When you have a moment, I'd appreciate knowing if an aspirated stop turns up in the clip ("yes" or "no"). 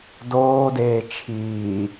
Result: yes